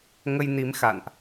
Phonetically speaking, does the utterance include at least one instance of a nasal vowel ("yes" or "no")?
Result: no